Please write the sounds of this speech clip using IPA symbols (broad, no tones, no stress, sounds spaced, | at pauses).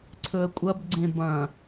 ǀʰ ɵ ə̯ kʷʼ ɐ b ɡ͡ǀ ẽ b ɐ̃